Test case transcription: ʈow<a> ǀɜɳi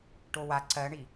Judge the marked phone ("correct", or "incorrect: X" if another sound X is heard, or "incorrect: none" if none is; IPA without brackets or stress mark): correct